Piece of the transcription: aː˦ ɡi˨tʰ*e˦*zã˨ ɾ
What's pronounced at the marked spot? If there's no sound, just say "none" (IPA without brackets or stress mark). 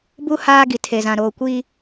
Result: e˨